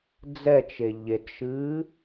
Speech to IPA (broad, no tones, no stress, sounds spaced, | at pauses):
d͡z ɛ t͡ʃ e ʎ e t ʃ ɨː